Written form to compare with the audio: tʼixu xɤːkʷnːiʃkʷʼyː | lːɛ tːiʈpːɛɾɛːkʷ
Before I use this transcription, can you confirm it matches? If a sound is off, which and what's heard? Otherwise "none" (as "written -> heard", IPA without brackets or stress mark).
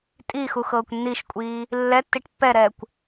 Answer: yː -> iː